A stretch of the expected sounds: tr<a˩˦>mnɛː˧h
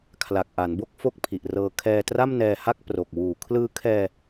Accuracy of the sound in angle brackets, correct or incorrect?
incorrect